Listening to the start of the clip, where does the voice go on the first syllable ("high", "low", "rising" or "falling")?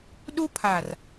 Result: high